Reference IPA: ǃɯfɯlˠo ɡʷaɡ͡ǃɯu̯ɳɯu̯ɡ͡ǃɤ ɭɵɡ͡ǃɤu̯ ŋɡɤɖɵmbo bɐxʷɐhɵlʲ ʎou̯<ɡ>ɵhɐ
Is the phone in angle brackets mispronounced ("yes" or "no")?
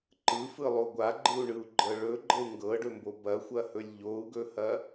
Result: no